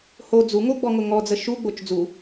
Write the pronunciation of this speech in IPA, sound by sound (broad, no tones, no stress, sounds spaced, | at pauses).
h o d͡z u ŋ o ɡ͡b ɔ ŋ ʊ ŋ ɔ d͡z ə ʃ u ɡ͡b o t͡ʃ d͡z u